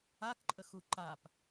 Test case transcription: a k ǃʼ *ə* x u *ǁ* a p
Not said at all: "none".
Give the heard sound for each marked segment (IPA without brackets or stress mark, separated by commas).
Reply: ə, ǃ